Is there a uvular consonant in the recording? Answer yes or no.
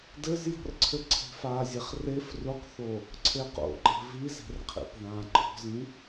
yes